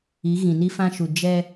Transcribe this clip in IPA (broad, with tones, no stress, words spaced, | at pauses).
i˨˦ ɣĩ˨ni˦fã˦ʃu˨ d͡ʒɛ˦